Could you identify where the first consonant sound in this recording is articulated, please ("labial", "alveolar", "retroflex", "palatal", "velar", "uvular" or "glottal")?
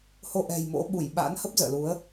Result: glottal